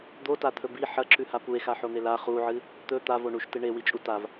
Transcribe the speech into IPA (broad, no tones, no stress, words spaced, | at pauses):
d̪otat̪ʰɵ bi ħɐǁʉha pue̯xaħon̪e la χuʕɨ | t̪ɵ t̪avo ɳuʃtɨ ɳewit͡ʃʼu tav